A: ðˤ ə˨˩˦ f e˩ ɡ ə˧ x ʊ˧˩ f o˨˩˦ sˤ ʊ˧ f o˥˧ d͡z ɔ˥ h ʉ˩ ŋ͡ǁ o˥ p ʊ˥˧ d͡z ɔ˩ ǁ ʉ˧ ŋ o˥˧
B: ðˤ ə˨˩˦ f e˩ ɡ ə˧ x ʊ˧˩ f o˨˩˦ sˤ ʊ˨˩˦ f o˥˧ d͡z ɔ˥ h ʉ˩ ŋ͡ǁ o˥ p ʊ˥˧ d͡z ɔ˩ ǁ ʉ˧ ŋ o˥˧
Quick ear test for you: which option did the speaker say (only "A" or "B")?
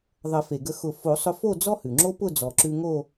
A